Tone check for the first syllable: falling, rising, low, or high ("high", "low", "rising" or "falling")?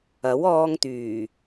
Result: rising